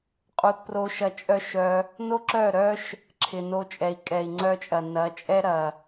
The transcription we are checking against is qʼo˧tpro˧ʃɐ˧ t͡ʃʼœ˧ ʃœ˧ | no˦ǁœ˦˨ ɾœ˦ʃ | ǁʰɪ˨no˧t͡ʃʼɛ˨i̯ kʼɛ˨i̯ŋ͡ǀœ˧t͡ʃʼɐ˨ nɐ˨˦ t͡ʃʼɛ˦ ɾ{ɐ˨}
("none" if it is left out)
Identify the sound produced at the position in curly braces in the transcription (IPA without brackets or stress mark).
ɐ˨